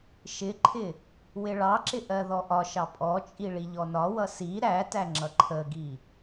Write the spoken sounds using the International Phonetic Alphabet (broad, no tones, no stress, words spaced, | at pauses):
ʃɪǃʰɪ | wɪɭɑǁɪ ʔɜðɔʔɒʃɑ pʼɔt͡ʃʼi ɭiʎɔnɒwʌ si ɾætæ ŋ͡ǁʌǃʰəɡi